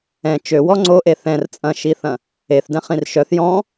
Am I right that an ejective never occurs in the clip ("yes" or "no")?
no